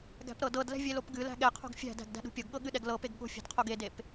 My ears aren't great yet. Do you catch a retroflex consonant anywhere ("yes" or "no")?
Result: no